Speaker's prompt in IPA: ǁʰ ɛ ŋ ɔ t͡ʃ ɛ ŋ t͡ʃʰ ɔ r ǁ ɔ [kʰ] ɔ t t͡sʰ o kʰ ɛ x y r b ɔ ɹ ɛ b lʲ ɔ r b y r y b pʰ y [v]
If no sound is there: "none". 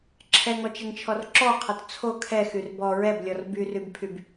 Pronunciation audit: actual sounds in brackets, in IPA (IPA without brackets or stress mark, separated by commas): qʰ, b